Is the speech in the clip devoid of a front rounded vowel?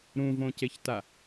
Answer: yes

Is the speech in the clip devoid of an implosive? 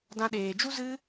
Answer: no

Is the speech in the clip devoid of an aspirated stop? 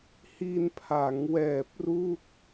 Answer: no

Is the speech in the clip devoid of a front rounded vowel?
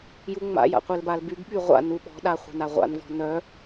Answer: no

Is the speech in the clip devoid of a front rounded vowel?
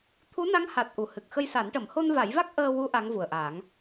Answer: yes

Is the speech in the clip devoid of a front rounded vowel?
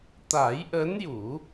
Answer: yes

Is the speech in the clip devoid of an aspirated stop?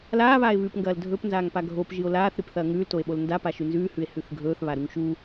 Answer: yes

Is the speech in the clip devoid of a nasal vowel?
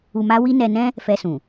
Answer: no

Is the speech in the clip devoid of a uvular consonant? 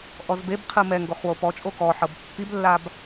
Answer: no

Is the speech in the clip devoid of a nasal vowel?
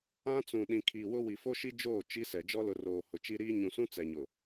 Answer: no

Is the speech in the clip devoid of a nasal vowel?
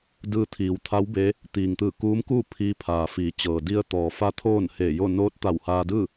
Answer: yes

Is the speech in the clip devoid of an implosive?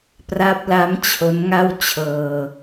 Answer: yes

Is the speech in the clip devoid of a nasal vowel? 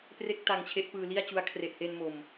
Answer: yes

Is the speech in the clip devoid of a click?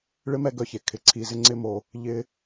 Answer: no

